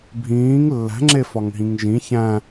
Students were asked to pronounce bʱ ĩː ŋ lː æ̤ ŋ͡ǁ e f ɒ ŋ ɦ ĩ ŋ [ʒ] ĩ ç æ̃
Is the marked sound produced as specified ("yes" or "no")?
yes